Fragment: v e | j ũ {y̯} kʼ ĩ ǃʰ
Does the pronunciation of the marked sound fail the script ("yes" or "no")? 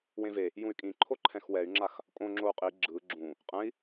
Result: no